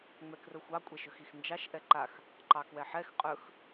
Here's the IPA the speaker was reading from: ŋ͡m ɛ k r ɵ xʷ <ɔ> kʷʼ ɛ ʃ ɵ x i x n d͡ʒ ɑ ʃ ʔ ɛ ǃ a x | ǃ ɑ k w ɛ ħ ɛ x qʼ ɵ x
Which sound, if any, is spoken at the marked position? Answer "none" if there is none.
ɑ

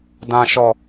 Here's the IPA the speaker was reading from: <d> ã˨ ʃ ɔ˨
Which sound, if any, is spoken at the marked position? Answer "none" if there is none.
d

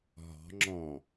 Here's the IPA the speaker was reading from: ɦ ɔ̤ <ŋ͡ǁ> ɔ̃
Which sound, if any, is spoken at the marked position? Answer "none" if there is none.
ŋ͡ǁ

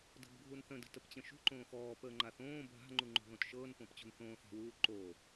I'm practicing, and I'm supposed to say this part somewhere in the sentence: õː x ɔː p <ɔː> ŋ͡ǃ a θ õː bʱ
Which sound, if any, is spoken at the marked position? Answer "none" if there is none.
əː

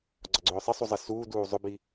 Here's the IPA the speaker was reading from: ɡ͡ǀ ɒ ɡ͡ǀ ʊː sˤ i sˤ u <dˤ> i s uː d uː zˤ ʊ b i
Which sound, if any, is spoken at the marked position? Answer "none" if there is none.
zˤ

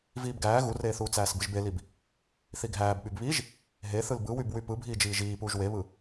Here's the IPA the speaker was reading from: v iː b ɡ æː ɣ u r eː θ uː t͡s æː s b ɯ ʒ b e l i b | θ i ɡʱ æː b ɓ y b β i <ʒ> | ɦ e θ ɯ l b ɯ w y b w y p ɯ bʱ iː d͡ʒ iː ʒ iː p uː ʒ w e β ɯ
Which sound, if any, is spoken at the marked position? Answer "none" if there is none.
ʒ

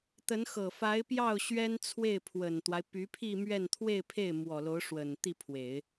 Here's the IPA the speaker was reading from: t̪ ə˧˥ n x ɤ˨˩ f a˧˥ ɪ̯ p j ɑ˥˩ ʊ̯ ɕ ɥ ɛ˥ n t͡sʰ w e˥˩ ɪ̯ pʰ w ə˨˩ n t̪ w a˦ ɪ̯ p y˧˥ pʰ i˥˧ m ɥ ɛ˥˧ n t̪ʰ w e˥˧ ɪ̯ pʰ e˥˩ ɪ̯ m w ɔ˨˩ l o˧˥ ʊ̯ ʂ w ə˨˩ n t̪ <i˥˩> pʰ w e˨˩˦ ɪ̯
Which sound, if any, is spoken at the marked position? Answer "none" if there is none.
i˥˩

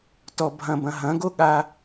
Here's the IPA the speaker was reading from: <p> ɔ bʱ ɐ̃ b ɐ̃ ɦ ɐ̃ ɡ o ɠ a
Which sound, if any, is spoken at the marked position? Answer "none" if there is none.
t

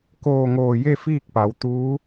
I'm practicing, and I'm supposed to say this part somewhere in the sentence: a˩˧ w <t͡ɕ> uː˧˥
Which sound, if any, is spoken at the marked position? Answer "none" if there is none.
t̪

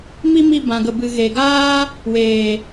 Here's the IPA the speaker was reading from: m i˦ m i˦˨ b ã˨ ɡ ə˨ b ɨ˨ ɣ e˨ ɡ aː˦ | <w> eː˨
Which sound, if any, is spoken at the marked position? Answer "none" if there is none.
w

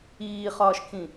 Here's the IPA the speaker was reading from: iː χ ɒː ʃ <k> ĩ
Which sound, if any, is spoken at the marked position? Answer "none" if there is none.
kʰ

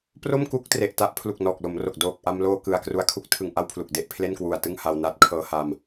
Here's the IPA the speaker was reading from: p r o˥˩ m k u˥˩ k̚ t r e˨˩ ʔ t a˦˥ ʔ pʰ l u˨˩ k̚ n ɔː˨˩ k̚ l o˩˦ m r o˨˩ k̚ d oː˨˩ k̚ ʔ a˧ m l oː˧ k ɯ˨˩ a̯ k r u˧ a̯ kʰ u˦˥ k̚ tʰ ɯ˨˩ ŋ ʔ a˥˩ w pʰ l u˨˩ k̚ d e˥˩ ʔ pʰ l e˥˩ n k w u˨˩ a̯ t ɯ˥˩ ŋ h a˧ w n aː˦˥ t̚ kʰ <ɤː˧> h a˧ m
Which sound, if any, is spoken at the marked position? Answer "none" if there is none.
ɤː˧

